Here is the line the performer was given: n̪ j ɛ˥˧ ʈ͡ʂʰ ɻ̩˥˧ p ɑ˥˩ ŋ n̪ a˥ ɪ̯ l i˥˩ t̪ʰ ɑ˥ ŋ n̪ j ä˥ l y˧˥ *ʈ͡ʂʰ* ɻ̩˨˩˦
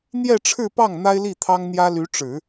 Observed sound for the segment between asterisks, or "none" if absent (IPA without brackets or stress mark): ʈ͡ʂ